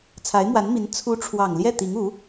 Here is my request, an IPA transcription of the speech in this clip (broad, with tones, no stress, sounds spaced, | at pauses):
t͡sʰ a˧˥ ɪ̯ m w a˧˥ n m i˧˥ n t͡sʰ u˧˥ ʈ͡ʂʰ w ɑ˨˩ ŋ l j ɛ˥˩ t̪ i˧˥ ŋ u˧˥